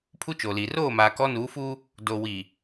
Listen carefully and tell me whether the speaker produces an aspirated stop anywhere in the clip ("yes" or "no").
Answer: yes